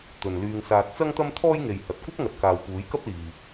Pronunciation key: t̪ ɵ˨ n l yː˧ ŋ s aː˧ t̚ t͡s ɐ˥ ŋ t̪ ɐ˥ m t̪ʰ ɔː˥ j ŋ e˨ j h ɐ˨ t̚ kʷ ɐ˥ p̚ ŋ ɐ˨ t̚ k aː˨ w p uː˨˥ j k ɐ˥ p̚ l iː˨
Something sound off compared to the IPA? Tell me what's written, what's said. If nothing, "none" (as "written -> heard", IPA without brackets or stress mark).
none